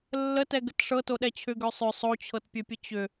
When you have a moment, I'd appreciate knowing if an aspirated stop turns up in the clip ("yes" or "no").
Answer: yes